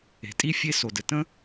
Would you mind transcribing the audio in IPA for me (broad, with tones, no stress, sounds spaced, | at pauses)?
e̤˩ tʼ i˥ fʲ e˥ s o˩ d ɘ˩ t ə̃˥